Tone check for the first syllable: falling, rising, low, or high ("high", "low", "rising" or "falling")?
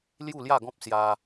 falling